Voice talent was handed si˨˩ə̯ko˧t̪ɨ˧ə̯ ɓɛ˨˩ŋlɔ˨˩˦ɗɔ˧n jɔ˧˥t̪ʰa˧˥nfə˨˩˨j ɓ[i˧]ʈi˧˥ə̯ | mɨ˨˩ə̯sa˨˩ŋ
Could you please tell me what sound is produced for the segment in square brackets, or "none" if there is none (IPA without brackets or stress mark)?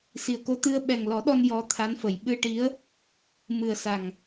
ɨ˧